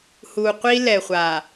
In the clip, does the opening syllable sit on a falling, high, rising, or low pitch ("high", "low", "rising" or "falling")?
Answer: low